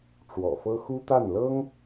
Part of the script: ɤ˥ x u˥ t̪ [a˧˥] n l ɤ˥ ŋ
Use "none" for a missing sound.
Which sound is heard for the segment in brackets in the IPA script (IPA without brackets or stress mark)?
a˥˩